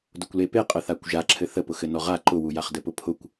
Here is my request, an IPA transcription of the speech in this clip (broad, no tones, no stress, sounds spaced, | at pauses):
d ʊ kʷ l e p e qʼ ə θ a kʷ ʒ a ǁʰ ɘ θ ə p ʊ x ɘ n ɔ ʁ a ǃ ʊ w u j a χ d ɘ p ʊ pʰ ʊ kʷ